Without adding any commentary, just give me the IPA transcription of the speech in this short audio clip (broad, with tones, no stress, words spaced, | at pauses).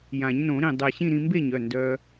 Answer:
jã˨˩˦ɲnõ˨˩˦ɾĩ˧˩ dˤɛ˧˩ɕĩ˥˨ɾĩ˧ mbe˥˨ɲœ˩˧˩ ndœ˧